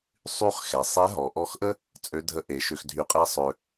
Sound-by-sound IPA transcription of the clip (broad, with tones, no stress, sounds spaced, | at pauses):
sˤ y˥ χ x ɛ˩ sˤ ɛ˧˥ ɦ ɔ˩ ʔ ɔ˧˥ x ʔ ə˥ | t͡sʼ ø˧˥ dʱ ə˧˥ ʔ e˩˧ ʃ ø˧ x dʱ y˧ qʼ ɛ˥ sˤ ø˧